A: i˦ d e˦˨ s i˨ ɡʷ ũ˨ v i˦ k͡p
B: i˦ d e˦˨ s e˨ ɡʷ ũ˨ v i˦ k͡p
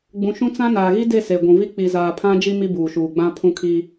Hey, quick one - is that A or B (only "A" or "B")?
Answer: B